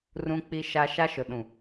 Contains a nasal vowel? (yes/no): yes